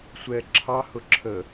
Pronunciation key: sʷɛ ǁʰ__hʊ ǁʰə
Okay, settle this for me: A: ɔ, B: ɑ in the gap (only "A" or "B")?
B